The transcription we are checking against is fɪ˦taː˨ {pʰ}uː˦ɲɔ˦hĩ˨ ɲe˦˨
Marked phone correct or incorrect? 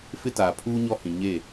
correct